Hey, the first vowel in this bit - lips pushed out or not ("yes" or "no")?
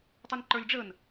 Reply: yes